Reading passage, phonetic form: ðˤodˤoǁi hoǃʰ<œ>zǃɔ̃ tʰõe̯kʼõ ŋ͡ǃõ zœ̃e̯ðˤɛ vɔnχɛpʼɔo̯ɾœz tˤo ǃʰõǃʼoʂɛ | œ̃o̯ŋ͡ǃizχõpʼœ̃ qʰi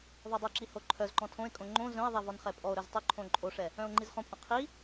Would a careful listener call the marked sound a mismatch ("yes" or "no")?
no